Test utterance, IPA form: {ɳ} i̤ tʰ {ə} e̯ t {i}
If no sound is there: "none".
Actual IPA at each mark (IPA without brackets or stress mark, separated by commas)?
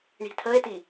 ɳ, ə, i